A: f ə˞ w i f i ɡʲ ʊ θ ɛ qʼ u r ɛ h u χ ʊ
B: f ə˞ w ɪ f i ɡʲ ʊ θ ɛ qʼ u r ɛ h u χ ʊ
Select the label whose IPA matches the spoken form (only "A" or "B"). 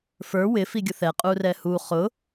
B